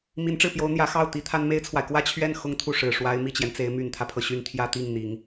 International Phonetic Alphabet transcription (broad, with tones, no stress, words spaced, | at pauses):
mi˧˥nʈ͡ʂɻ̩˥˩pjo˧˥ʊ̯ n̪jä˧˥ xɑ˥˩ʊ̯ t̪i˧˥ t̪ʰa˥nme˥ɪ̯t͡sʰwa˨ɪ̯ kwä˥˧t͡ɕʰɥɛ˥˩n xʊ˥ŋt̪ʰu˥˩ ʂɻ̩˨˩ ʂwa˧˥ɪ̯ mi˥˩t͡ɕjɛ˩nt͡se˧˥ɪ̯ my˨˩nt̪ʰä˦pʰɤ˩ɕy˥n t̪ʰjä˥t̪i˥˩ŋn̪i˨˩˦ŋ